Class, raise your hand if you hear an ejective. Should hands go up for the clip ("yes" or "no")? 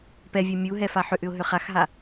no